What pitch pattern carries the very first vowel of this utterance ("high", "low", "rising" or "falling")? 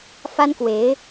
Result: high